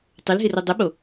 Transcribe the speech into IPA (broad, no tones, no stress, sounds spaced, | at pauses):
tˤ ʏ l ɦ ɪ r o dˤ ʊ ɓ o